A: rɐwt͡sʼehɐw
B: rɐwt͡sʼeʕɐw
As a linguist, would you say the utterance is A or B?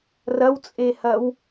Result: A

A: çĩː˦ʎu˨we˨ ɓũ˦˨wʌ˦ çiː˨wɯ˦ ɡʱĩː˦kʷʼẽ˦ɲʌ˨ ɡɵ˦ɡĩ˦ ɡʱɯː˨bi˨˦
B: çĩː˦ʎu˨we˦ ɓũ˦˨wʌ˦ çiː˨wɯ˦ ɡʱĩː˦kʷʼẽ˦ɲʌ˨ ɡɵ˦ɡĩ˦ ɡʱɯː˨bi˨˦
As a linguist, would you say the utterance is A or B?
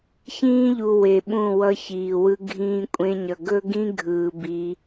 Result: A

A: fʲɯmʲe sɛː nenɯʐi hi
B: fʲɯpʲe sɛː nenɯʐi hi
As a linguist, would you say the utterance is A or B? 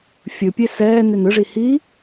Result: B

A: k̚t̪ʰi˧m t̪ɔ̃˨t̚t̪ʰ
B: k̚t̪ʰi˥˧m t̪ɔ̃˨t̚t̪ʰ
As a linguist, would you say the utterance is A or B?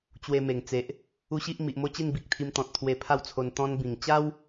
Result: A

